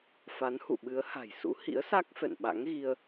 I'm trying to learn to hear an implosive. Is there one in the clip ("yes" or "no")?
yes